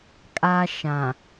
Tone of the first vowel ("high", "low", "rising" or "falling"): high